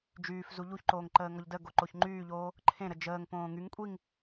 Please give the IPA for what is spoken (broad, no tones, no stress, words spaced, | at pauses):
d͡ʒyːf zuʎuçǃoːŋ ǃəːŋɔʎdə ɡoǃoçŋ͡ǃyːʎoː | ǃʰẽɾə d͡ʒəːŋ põːŋyŋ kʷʼiŋ